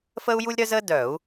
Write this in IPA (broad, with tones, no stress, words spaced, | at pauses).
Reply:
fəː˥u̯ju˥lʲɾœ˥zəː˥ dœ˧˩˧u̯